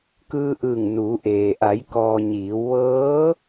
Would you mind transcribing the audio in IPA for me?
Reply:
k ɯː˧ ʔ ɯː˧˩ ŋ n uː˩˧ ʔ eː˩ ʔ a˩˧ j k ɔː˩ ɲ iː˩˧ w ʋ ɤː˧˥

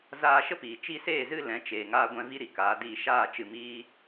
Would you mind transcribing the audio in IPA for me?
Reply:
z aː˧ ʃ ə˦ p iː˨ t͡ʃ i˧ s eː˦˨ z ɨ˦˨ l ɛ̃˨˦ t͡ʃ eː˨ ŋ aː˧ ɡʷ ɛ̃˧ v i˦ ɾ i˨ k aː˨˦ d iː˧ ʃ aː˦˨ t͡ʃ ɨ˧ m iː˦

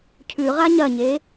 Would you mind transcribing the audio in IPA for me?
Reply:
cʰ ʉ ʁ a ɲ ɐ ɲ e

